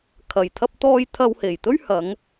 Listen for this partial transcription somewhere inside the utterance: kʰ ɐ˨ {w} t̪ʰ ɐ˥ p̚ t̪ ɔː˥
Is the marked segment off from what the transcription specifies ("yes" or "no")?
yes